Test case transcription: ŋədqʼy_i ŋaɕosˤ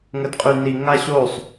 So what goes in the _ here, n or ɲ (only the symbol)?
n